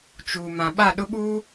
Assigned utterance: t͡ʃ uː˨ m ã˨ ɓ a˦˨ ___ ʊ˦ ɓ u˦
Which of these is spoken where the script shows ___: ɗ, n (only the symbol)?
ɗ